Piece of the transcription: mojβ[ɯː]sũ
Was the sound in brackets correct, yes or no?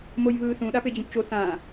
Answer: yes